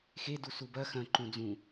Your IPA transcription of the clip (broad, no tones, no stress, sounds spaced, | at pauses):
x e d u s u b ɐ x ɐ̃ ǃ ũ d͡z ũ